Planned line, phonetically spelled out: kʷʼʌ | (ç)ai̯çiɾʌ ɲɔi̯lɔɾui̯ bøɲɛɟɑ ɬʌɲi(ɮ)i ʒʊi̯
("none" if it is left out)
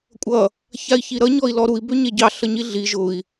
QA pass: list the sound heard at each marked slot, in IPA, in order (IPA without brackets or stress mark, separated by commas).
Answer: ç, ɮ